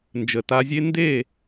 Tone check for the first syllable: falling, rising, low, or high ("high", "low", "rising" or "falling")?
low